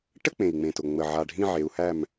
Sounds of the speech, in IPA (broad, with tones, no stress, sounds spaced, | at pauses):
ʈ ə˥˨ k͡p ẽ˨˩ i̯ ŋ͡m ẽ˨˩ t ʊ˨˩ ŋ͡m ə˨˩ ʕ a˨˩ ɖʱ ĩ˥˨ ʕ e˨˦ u̯ h æ˥˨ m